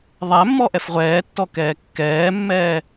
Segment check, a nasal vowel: absent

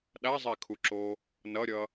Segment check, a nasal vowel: absent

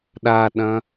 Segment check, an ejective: absent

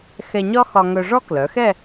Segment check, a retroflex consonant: present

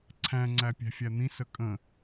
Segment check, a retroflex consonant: absent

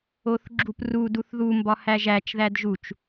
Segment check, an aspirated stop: absent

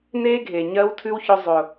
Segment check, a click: absent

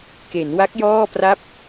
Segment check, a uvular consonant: absent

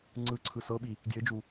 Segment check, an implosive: present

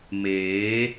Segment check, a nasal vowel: absent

